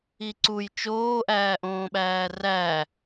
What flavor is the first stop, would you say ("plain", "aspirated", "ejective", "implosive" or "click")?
click